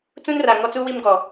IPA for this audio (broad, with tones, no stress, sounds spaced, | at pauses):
t͡s ũ˦ n r a˨ ŋ ɔ˦ t͡s u˦ w i˦ m ɡ ɔ˨